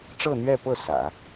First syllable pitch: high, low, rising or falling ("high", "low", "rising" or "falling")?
falling